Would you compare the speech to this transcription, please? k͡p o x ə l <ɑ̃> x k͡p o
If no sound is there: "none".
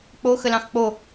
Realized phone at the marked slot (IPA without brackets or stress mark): ɑ̃